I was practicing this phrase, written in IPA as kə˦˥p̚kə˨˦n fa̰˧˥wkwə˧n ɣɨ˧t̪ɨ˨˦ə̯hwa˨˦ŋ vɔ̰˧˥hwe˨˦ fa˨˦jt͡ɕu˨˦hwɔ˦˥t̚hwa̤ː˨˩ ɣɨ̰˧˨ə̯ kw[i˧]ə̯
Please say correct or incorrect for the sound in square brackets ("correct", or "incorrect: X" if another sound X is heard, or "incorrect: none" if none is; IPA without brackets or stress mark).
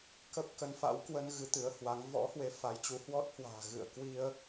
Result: correct